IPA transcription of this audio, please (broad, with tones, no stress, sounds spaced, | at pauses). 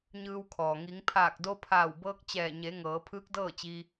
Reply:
ɲ ɯː˧ w kʰ ɔː˩ ŋ i˩˧ ŋ pʰ aː˧˩ k̚ d o˧ pʰ aː˧˩ w b ɤː˧ k̚ t͡ɕ ɛː˧˩ ɲ e˩˧ ŋ ɤː˩˧ pʰ ɯː˧˥ k̚ d ɤː˥˨ t͡ɕ iː˧